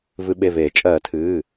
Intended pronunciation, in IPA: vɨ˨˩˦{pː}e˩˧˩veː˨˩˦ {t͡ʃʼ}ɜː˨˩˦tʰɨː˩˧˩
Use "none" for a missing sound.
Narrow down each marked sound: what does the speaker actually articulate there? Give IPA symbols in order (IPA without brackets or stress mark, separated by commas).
ɓ, t͡ʃʼ